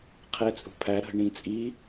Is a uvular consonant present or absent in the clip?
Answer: present